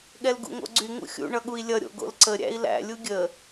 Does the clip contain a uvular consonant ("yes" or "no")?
no